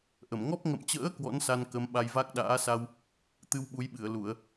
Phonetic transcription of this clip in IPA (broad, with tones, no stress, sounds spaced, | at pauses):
ʔ ə˧˩ m ŋ ɔ˦˥ p̚ ŋ ə̰˧˨ m t͡ɕ ə̰ː˧˥ k w ɔ̰˧˥ n s a˧ n k ə˨˦ m ɓ a˧ j v a˦˥ k̚ ɗ a̰ː˧˥ s a˧ w | t̪ ɨ˧ w ɓ u˨˦ j ɓ ɨ˧˩ ə̯ l u˧˩˨ ə̯